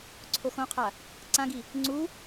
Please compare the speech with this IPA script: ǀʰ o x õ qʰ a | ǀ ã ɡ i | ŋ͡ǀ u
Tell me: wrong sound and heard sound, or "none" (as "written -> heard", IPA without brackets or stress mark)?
none